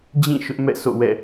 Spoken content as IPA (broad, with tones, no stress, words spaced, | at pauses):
d͡ʑĩ˦˨ ʃʊ˦ʔmɛ̰˦˨so̰˦˨wɛ̰˦˨